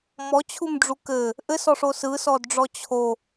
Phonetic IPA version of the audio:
m ɔ t͡ɕʰ u m ɖ͡ʐ u k ɘ | ʔ ɘ s ɔ ʂ o s ɯ s ɔ d ɖ͡ʐ ɔ t͡ɕʰ o

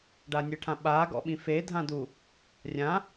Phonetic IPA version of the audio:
ɖ a nʲ ɯ ʈʰ ã ɓ a ɡ ɔ̰ ɓ ĩ f e dʱ ã d u | rʲ ã

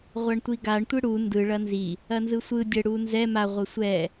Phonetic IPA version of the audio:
ʁʷ a ɳ tʷ i ɡ a ɳ tʷ ɯ ɽ u n d ɯ ɭ ɐ n z i | ɐ n z ɯ sʷ ɯ dʲ ə ɽ u n z ɛ m a ʁʷ ɐ sʷ ɛ

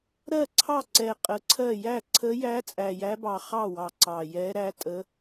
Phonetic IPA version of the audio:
ɾ ɜ˥˩ ǀʰ ɑ˥˩ ǀ ɛ˨˩ qʼ ə˨˩ ǀʰ ɜ˥˩ j æ˥˩ ǀʰ ə˧˥ j æ˧˥ t͡sʼ æ˨˩ j æ˧˥ b ɑ˨˩ χ ɑ˥˩ w ɑ˨˩ ǀ ɑ˨˩ j ɛ˧˥ ɾ æ˧˥ tʼ ə˧˥

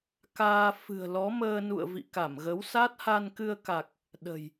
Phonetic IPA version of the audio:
k aː˧ f ɨ̤˨˩ ə̯ l ɔ˨˦ m əː˧ n ṵ˧˨ ə̯ v ḭ˧˨ k a˧˩ m ɣ ə˨˦ w s a˦˥ t̚ h a˧ n k ɨ˧ ə̯ k a˨˩ k̚ | ɗ ə̤˨˩ j

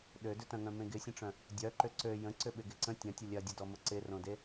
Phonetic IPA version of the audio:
ɗ ø d ʏ t ɐ̃ ŋ œ̃ m ẽ ɡ ɪ sʲ ə̃ ʈ͡ʂ œ̃ | dʲ œ ǃ ʏ ǀ ø j ə̃ ǀ ʏ ɓ ɪ ɡ ɪ ǀ ə̃ tʲ ɐ̃ tʲ ə lʲ ɐ dʲ ə d ɔ m ʊ ǀ ɪ r õ d e

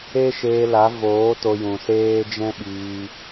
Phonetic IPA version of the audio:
e˦ ʃ eː˧ l a˨˦ v oː˨˦ t o˧ j ũ˨ s eː˦ d͡ʒ ɛ̃˦ ɓ iː˧

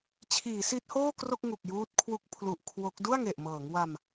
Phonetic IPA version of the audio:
t͡ɕʰ iː˩˦ s i˦˥ t̚ h oː˥˩ k r o˥˩ k̚ ŋ u˨˩ k̚ j uː˦˥ t̚ kʰ w u˦˥ k̚ pʰ l u˨˩ ʔ kʰ w o˦˥ k̚ d u˥˩ a̯ ŋ e˨˩ ʔ m ɤː˩˦ ŋ w a˧ m

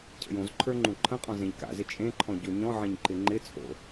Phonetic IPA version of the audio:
cʰ ə̰ j õ z ǃʰ ə˞ ŋ͡ǃ ũ ǃʰ ə̃ qʼ ɔ̃ z ẽ ʎ k a̰ z ɪ t͡ʃʼ ẽ ǃʰ ɔ̃ ɟ o ɲ ɔ̃ ʕ ẽ ɲ ǃ ɪ ŋ͡ǃ ɪ t͡sʼ o̰

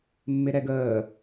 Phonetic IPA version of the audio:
mː ɪ ɾ ɛ ɡ əː

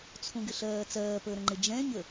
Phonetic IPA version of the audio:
t͡sʰ ũ ɡ ɪ ɬ ɜː t͡s ɜː p əː ɾ ə̃ ŋ͡ǃ ɪ d͡ʒ ɛ̃ ɲ ə

